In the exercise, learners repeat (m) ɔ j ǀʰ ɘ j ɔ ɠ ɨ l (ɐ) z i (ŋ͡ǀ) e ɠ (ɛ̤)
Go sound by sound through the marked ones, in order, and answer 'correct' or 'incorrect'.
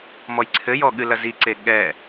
correct, correct, incorrect: ǀ, incorrect: ɛ

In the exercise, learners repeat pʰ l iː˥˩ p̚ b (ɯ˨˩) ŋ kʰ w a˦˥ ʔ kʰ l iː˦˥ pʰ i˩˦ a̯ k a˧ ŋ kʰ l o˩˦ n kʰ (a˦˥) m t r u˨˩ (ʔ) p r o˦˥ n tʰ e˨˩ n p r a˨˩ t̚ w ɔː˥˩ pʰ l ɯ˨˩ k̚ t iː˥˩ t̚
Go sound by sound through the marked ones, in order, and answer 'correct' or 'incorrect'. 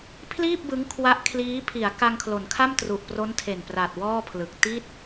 incorrect: ɯ˦˥, incorrect: a˥˩, correct

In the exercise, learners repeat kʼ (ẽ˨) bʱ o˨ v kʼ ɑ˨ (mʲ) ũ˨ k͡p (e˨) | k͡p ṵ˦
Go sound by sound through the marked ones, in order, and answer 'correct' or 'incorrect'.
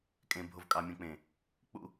correct, correct, incorrect: ẽ˨

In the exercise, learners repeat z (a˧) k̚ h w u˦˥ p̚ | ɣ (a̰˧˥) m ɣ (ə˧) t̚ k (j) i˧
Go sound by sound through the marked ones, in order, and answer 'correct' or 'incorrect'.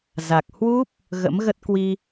incorrect: a˨˩, incorrect: ə̰˧˥, incorrect: ə˦˥, incorrect: w

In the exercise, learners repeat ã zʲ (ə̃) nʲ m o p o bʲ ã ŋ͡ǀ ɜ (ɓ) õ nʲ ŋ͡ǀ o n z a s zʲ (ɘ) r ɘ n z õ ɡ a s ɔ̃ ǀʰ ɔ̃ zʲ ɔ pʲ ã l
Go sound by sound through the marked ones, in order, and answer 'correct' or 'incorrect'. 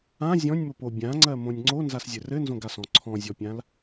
incorrect: ɔ̃, incorrect: m, correct

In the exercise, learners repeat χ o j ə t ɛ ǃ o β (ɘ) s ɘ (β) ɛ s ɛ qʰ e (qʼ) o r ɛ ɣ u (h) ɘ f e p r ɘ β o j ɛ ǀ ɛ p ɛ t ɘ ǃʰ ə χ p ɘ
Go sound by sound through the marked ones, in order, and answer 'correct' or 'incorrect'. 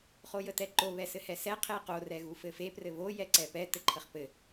incorrect: ɛ, incorrect: h, incorrect: q, incorrect: f

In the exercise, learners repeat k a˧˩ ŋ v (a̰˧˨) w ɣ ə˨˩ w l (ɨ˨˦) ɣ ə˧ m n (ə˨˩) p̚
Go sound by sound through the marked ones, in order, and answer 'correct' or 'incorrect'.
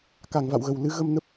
correct, incorrect: ɨ˧, incorrect: ə˦˥

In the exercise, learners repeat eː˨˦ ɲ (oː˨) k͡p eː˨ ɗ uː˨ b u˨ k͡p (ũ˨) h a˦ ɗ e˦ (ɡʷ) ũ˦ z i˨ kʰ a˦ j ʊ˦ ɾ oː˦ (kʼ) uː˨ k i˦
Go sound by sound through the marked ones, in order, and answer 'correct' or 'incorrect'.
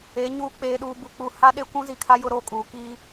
incorrect: uː˨, incorrect: u˨, incorrect: kʷ, correct

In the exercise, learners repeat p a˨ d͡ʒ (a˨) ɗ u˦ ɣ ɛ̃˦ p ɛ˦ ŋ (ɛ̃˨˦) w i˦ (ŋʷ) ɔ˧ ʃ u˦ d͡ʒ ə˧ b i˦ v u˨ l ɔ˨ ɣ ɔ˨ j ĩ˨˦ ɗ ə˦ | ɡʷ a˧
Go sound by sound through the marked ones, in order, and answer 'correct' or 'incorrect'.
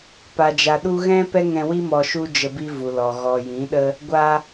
correct, incorrect: ɛ̃˧, incorrect: m

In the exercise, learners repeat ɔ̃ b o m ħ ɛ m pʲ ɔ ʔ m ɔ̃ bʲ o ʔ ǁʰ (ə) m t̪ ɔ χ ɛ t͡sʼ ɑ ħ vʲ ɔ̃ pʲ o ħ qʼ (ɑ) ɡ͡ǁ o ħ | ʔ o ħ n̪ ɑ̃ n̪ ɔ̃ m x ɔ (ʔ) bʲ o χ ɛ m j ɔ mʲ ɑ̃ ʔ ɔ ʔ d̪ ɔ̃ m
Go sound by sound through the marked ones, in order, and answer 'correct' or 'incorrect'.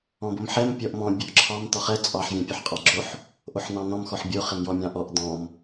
incorrect: ɑ, correct, incorrect: ħ

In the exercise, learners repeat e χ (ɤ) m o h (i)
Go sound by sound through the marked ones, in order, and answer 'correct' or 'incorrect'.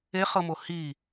correct, correct

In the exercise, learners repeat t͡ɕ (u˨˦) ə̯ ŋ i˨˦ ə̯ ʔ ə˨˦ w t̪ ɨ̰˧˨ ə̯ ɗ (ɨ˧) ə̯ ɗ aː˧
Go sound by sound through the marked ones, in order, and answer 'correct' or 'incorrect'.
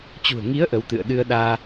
incorrect: ṳ˨˩, correct

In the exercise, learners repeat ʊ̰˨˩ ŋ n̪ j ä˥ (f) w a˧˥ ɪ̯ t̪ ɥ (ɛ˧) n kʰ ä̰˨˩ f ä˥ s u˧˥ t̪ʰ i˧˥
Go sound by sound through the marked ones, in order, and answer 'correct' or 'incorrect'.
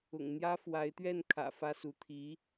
correct, incorrect: ɛ˥˩

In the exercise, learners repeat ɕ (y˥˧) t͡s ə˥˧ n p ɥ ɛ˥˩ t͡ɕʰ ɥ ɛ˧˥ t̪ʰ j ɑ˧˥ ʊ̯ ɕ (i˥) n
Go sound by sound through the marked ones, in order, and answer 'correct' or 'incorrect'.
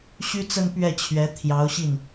incorrect: y˥, incorrect: i˥˩

